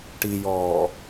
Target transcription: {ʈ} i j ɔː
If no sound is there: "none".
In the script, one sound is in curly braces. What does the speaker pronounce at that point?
ʈ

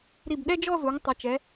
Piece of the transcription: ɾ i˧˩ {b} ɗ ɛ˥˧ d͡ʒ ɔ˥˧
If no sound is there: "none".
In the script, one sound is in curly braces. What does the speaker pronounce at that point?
b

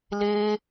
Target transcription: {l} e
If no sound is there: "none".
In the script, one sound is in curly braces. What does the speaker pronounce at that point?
l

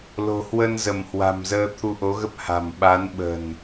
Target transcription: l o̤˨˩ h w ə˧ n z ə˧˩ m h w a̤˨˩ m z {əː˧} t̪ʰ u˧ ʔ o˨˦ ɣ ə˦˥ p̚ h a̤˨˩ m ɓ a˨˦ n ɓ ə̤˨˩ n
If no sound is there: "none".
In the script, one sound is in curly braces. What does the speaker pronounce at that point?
əː˧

